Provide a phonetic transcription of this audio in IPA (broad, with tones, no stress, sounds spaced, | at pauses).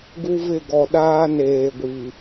ɡ u˦ v ɪ˦˨ ɡ ɔ˨ ɗ aː˦ n eː˨ ɡʷ i˨